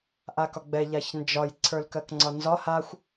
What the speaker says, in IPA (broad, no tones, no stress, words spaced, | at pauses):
ʔakɒɡ͡bɛ ʎaçnd͡ʒɒj ǀʰə˞lkɜkŋ͡ǀɒnzɒ haxʷ